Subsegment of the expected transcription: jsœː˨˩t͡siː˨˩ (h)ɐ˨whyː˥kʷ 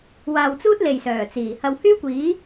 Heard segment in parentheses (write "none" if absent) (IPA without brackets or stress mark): h